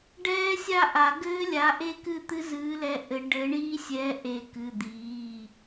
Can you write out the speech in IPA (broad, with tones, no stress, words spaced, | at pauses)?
ɖɛː˦˥ sʲa˥˧ʔa˨˩˦ ɡɘː˦˥lʲa˨˥ʔe˥˧kɨ˥˧ t̪ɨ˦˥zɨː˨˥lɛ˨˥ ʔɘ˨˩˦ ɖɘː˨˥ɳiː˦˥sʲɛː˨˥ ʔe˨˩˦kɨ˩˧˩d̪iː˩˧˩